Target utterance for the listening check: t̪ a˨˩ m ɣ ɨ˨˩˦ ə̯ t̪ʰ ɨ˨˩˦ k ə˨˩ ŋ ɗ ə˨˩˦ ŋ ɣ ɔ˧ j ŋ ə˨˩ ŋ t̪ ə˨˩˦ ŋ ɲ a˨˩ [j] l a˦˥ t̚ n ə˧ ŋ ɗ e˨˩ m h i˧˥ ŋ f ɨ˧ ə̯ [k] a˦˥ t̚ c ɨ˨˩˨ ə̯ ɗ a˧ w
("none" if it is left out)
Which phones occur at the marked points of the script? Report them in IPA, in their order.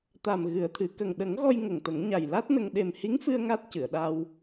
j, ŋ

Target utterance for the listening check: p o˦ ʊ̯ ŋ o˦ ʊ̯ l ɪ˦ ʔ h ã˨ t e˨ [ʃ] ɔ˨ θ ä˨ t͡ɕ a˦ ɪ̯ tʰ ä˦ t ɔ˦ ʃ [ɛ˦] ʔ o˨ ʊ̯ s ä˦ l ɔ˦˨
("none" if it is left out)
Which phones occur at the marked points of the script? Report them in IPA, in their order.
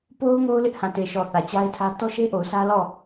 ʃ, e˦

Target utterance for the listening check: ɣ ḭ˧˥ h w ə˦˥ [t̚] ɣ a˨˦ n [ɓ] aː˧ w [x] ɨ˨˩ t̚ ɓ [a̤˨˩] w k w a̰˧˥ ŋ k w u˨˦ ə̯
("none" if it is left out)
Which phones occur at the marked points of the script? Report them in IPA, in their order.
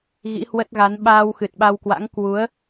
t̚, ɓ, x, a˧

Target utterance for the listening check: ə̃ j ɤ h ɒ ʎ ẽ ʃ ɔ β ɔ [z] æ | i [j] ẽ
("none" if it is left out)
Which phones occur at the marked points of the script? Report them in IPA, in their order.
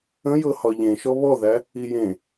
ð, j

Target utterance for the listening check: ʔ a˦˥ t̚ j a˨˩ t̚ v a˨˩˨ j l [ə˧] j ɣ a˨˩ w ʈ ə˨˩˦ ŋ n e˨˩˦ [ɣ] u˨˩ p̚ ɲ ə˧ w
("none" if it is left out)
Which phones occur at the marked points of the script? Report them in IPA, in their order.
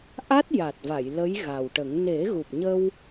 ə˧˥, ɣ

